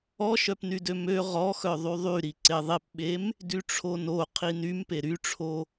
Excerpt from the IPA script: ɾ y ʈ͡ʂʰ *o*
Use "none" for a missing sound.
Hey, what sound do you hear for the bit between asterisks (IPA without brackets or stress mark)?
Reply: o